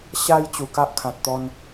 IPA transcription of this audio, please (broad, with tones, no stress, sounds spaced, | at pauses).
ɕ a˧ j t͡ɕ u˨˩ k a˦ ʔ kʰ ã˨ t̚ t̪ ɔ˧ n